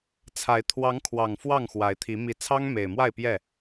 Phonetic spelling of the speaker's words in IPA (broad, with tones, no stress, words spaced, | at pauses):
t͡sʰa˨˦ɪ̯ t̪ʰwɑ˨˦ŋkʰwɑ˨˩ŋ fwɑ˥˨ŋxwa˨˦ɪ̯t̪ʰi˨˦ mi˨˦t͡sʰɑ˦ŋ me˨˩ɪ̯mwa˥˨ɪ̯pjɛ˥˨